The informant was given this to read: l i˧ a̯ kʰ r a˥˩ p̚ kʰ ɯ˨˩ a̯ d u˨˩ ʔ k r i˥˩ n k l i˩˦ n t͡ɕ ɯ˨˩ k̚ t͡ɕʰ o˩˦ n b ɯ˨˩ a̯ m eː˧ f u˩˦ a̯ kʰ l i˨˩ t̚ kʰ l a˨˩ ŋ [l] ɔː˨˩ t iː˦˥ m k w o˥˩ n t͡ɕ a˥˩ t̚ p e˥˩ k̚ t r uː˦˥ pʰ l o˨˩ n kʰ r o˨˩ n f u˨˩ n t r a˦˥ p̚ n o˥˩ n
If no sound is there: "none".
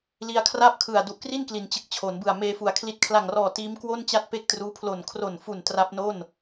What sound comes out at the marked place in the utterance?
r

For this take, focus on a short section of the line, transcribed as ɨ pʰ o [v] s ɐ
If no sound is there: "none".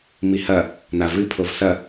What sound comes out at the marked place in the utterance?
v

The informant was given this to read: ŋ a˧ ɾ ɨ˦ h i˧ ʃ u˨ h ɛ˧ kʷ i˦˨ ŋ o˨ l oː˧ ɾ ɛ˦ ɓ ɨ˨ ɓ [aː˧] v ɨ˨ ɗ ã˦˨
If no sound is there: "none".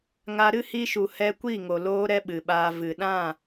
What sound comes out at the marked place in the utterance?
aː˧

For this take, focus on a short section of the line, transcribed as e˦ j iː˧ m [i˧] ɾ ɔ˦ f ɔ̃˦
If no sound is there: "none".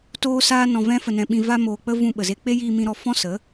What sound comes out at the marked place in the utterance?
ĩ˧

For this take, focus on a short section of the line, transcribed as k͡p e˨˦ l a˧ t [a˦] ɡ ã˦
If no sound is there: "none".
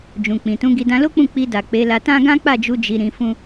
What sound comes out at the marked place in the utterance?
ã˦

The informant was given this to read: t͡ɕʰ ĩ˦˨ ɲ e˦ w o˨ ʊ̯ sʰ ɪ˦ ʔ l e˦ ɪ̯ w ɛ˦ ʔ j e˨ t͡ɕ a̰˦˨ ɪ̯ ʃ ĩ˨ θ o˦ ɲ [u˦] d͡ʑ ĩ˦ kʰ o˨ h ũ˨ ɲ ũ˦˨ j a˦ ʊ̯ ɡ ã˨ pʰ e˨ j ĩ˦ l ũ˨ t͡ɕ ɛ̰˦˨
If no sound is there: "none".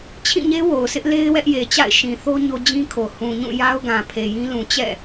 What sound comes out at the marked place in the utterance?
o˦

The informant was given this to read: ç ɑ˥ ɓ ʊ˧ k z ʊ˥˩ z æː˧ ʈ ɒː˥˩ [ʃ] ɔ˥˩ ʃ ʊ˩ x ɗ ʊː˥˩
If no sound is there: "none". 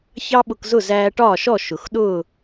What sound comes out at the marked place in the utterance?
ʃ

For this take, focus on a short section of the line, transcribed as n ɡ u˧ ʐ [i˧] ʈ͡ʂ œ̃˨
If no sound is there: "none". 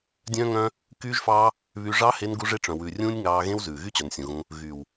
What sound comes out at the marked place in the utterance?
e˧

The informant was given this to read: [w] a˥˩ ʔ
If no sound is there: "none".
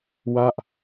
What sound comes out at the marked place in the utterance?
w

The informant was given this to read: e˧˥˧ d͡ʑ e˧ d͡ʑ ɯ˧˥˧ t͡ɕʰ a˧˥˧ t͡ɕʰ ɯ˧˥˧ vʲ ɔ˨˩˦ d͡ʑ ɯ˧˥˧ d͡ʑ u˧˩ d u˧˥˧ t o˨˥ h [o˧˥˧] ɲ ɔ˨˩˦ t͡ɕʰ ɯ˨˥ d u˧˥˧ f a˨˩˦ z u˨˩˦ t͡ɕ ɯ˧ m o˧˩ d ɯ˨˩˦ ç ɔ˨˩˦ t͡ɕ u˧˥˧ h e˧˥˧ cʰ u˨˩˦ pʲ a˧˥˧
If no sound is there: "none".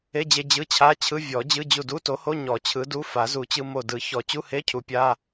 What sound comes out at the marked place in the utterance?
o˧˥˧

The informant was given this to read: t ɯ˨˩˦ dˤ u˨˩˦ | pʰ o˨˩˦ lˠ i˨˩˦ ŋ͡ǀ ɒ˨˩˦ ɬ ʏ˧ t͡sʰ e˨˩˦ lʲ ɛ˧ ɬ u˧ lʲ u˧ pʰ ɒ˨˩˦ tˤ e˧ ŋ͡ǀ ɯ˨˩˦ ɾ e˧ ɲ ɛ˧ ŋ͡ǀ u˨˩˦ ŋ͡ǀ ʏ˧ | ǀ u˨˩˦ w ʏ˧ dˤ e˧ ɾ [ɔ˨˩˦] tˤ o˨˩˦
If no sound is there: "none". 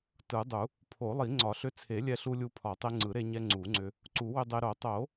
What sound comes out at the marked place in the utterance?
o˨˩˦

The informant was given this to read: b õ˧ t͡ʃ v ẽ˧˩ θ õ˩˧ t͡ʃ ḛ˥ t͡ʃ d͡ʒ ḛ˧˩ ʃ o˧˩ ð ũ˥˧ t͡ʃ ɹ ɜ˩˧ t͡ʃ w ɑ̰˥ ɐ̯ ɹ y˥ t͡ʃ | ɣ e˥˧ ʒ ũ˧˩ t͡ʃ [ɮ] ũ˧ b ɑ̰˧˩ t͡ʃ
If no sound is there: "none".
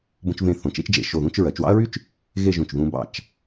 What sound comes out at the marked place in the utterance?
ð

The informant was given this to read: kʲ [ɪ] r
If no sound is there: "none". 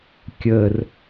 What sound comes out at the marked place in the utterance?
ə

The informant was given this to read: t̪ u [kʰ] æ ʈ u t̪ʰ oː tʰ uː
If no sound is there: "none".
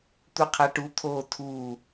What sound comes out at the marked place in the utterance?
qʰ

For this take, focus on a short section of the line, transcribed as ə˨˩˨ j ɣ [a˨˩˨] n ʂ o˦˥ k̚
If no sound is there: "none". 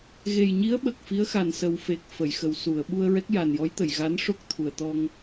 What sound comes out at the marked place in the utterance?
a˧˥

